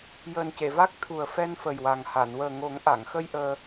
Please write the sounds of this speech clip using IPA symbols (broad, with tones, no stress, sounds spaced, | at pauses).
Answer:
j əː˨˩ n c e˨˩˨ v a˦˥ k̚ t̪ʰ u˨˩ ə̯ f ɛ˧ n f ə˨˩ j w a˨˩ ŋ h a˨˩˨ n w əː˨˩ ŋ o˨˩˦ ŋ ʔ a˨˩˨ ŋ x ə˧ j ʔ əː˧